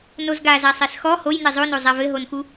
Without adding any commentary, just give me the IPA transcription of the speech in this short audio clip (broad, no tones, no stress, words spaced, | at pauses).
nozɡa zasˤɛsxɔ hojnɛ zˤono zˤavɘɦonxu